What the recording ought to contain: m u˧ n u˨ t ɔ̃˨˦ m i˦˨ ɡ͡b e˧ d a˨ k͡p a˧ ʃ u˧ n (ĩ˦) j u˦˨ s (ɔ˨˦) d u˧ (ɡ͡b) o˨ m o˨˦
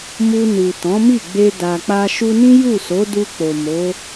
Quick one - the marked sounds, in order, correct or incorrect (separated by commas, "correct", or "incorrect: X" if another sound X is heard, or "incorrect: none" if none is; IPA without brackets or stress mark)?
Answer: correct, incorrect: o˨˦, incorrect: k͡p